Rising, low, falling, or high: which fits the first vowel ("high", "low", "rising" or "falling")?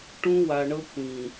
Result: high